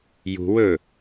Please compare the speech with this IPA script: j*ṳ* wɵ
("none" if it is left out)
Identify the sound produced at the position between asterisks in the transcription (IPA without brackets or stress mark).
ṳ